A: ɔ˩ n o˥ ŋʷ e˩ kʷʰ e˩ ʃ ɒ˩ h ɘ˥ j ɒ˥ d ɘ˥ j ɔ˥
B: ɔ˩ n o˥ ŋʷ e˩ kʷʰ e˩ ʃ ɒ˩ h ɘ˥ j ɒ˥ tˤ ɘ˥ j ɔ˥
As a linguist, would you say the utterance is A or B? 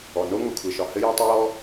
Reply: B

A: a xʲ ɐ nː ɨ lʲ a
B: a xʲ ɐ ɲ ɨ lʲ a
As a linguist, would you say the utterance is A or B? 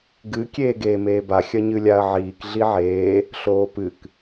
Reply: B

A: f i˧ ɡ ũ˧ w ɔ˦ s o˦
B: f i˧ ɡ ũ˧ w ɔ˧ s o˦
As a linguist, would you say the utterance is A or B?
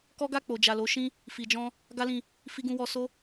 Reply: B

